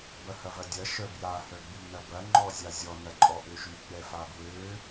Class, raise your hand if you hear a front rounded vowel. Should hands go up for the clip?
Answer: yes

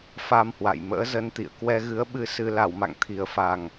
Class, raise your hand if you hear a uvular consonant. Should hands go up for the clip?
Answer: no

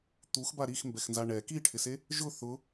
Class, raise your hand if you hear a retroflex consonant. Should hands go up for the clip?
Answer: yes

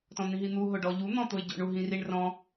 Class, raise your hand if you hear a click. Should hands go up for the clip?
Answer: no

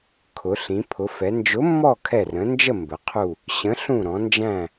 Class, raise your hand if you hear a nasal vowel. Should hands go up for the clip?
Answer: yes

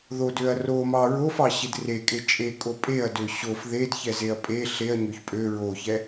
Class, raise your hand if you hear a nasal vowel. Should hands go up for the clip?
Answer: no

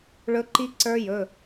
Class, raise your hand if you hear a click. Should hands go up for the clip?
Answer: yes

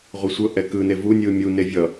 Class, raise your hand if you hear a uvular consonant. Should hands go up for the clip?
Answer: yes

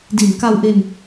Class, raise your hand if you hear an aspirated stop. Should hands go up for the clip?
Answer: no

